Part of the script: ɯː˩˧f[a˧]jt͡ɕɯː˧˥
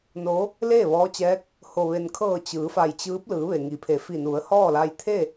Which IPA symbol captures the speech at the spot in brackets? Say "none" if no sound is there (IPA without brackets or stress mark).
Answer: a˧˩